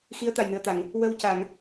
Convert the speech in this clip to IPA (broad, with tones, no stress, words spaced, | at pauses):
xi˧˥ə̯t̪a˨˩jnɨ˨˩˨ə̯t̪a˨˩˨ŋ | wə˧w ca˨˩˨ŋ